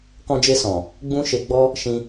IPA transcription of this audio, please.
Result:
k ɔ̃˧ d͡ʒ e˧ s ɔ̃˨ | ɡ͡b ũ˦ ʃ e˧ ɡ͡b ɔ˦ | ʃ ĩ˧

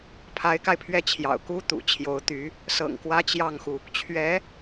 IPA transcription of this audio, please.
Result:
pʰ a˧˥ ɪ̯ k a˧ ɪ̯ pʰ ɥ ɛ˥˩ t͡ɕʰ j ɑ̰˨˩ ʊ̯ k u˥ t̪ ṵ˨˩ t͡ɕʰ j o˧˥ ʊ̯ t̪ y˧˥ | s ɤ̰˨˩ ŋ k w ä˥ t͡ɕ j ɑ˥˩ ŋ x u˩ | t͡ɕʰ ɥ ɛ˧˥

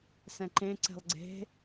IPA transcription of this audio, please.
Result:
s ɛ̃ ǃ ẽ ǀ ɛ̤ lˠ ɡ͡ǀ e̤

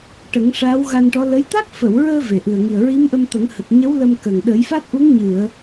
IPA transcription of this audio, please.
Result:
ʈ ə˨˩˦ ŋ ʂ aː˧˥ w ɣ a˧ n ʈ ɔ˧˥ l ə˧˥ j t̪ a˦˥ k̚ f ə˨˩˨ w ɹ əː˧ v e˨˩ ʔ ɨ˨˩ ə̯ ŋ i˨˩ ə̯ ɹ i˧˥ m ʔ ə˧ m t̪ ə˨˩˦ ŋ h ə˨˩ k̚ ɲ ə˧˥ w l ə˧ m k ə˨˩ ŋ ɗ ə˨˩˦ j f a˦˥ t̚ ʔ u˧˥ ŋ ɲ ɨ˨˩˨ ə̯

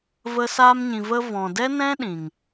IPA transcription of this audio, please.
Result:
v ə˧ s aː˧ m ɲ ĩ˨ v ə˧ v ɔ̃˨ d ɛ˦ n ɛ̃˦ ɗ ĩ˨ ŋ

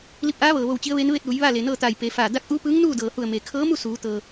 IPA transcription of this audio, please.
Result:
l i˧ p̚ ʔ aː˧˥ ʋ ɤː˩ ʋ o˧˩ w t͡ɕ i˧˥ ə̯ ʋ e˧˥ n ʋ e˥˨ t̚ ʋ u˩˧ j ʋ aː˥˨ l e˩ n ɤː˥˨ t̪ aː˧˩ j p e˩˧ f aː˧˩ d a˧˥ k̚ ʔ uː˧˥ p ɯː˧˥ ŋ n uː˥˨ d ɤː˩ h u˧˩ ə̯ m eː˩ kʰ ɤː˧˥ m u˥˨ s uː˩˧ t̪ ɤː˩

